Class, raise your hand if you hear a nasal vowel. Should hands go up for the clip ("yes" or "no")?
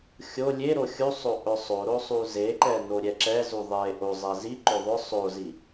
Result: no